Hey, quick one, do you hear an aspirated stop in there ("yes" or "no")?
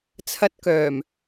yes